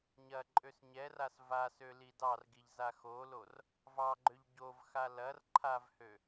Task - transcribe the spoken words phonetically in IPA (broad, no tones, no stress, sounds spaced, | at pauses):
ɲ ɐ ǃʼ ø s ɲ ɛ r a s v a s ø l i d ɑ r ɡ i ʎ z a x o l o r | v ɑ ɡ͡ǃ ø ʎ ɟ o v x a l ɐ r ǃʰ a v h ø